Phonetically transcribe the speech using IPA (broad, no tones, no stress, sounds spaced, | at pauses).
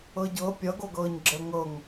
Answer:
ɤ ɟ ɤ pʲ ʌ ɡ o ɡ ɤː ɲ ɡ͡ǁ ə ŋ ɤ ŋ